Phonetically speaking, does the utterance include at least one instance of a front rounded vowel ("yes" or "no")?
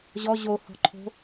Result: no